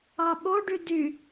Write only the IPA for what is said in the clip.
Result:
ɑɓoɖy dy

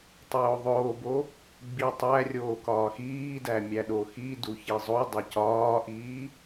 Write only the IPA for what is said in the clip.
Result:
tˤoːðˤoːbo | ɡ͡bitˤærʲoː kɒːxiːdæmʲæ ɗoxi duçizˤodˤe cɒːʔiː

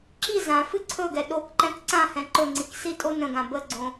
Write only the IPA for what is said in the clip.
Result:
ǁi zã fɨǀʰɵɡɛ ɗokǃɛ̃k ǀãhɛ̃ ǃɵŋ͡ǀik sitʼonə̃ɡã bəɡ͡ǀõ

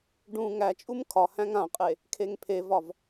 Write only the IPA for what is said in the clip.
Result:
ɖũ ŋæt͡ʃʼum kʰɒhæ̃ŋ ãqʼe | kʰeŋpʰevɒv

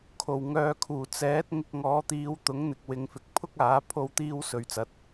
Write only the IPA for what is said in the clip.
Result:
kʰo˨˩wŋœː˨kʰuː˨˩ t͡sɛː˨˥t̚ ŋɪ˧k̚ ŋɔː˨˧t̪iː˨˧wt̪ʊ˨˥ŋ n̪ɪ˨k̚wɪ˨ŋfɪ˨k̚ pʰʊ˥k̚aː˨˥ pʰo˥wt̪iː˥w sɵ˨ɥt͡sɐ˨˥t̚

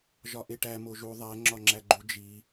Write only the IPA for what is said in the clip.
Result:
ʒɒʔeʈæ moʒu ðˤæ ŋ͡ǁɒŋ͡ǁæɡ͡ǃu d͡ʒi

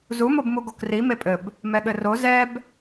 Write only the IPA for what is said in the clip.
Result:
zumobmu ɡokri mepʼɘb | mɛɠɘro zɛb

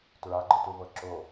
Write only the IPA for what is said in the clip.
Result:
tɹaɡ͡ǃɯtuvɤ ǁo

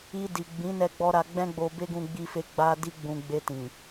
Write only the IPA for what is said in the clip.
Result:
i˧di˨ ɡ͡bĩ˨˦nɛ˧ɡ͡bɔ˧ ɾa˧ɡ͡bɛ̃˦ɡ͡bo˧ be˦ɡũ˧ɡ͡bi˧fe˧ ɡ͡ba˦di˦ ɡ͡bũ˧ ɡ͡be˧tĩ˨

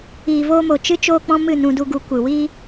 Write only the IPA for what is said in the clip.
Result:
iː˨voː˧ mo˨ t͡ʃɨ˦ t͡ʃoː˧k͡pɔ̃˧ mɨ˦˨nũ˧du˧ɡu˧ kʷɨ˨wiː˦

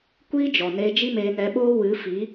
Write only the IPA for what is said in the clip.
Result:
kʷiː˦d͡ʒɔ˨neː˧ d͡ʒi˦meː˧nɛ˧ɓoː˦ wɨ˨˦fi˨˦

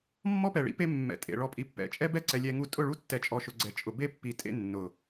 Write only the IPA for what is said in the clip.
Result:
mːɔ˦pɛ˨ɭḭ˦pe˦ mːɛ̰˨tʼḛ˨ ɭɔ˨pʼi˨pːɛ̰˨˦t͡ʃʼɛ˦ bɛ˦ǀɛ˨ lʲɛ˦ŋu˦ tʼʊ˦˨ɭu˦tːɛ˨t͡ʃʼɔ˨ ʃʊ˨ɡ͡ǀɛ˨t͡ʃʼʊ˨ be˦pːi˨ tʼḛ˦nːʊ˨

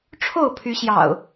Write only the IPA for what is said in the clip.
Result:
ʈ͡ʂʰo˥˨ʊ̯pʰy˨˦ɕjɑ̰˨˩ʊ̯

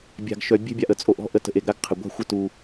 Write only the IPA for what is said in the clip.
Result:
bʲa̤˨ɡʃœ˨ bʲe̤˦bʲa˨ʔə˨ t͡sʼo˨ʔɔ̤˦ʔə˨ tə̤˨ʔe˨ɡɾa˦ɡ qʰɪ˨ ɡʷa̤˦xʷɪ˦˨tu˨

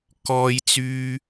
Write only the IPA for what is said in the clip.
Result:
kɔː˧jt͡syː˧

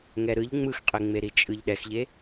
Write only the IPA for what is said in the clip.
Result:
ŋɛɾɯʎ ŋ͡mɯxqʼeŋ͡meɾi t͡ʃʼɯʎɗɛxʎe

